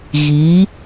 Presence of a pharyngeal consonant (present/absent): absent